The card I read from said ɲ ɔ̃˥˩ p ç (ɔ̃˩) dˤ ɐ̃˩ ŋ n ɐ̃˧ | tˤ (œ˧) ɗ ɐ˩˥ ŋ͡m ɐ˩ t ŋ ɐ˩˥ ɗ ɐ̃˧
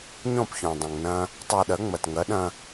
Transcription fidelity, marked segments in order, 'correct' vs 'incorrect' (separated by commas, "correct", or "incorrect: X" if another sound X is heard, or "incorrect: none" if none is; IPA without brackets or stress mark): correct, correct